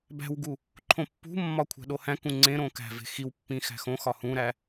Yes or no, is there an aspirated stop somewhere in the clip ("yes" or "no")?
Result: yes